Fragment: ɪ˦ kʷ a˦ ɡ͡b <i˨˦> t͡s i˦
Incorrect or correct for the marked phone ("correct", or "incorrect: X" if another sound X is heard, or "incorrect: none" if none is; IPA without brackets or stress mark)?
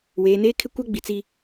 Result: incorrect: i˨